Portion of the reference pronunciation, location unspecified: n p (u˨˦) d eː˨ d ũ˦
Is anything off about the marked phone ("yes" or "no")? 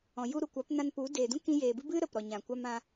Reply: no